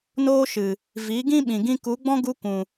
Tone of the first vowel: high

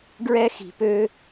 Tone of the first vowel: high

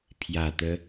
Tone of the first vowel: low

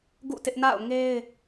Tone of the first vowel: falling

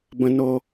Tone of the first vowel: high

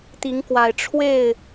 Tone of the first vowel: rising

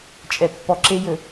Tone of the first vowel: low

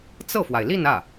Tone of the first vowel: falling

